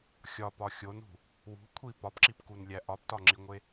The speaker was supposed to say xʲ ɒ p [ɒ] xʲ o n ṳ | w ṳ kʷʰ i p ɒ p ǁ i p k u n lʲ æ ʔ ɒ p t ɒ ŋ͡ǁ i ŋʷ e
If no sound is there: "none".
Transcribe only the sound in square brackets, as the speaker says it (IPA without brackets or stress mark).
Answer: ɒ